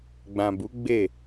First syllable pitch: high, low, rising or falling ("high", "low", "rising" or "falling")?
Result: low